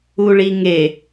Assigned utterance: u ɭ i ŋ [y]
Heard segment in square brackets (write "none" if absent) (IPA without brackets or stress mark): e